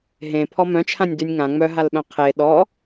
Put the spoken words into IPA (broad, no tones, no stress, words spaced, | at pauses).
ɦẽ pʰɔmœ̃t͡ʃʰãnʲ dynʲŋã ŋ͡mœɦalɓœ̃ qʰe ɗɔ